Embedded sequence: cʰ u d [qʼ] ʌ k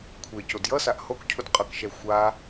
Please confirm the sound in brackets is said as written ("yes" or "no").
yes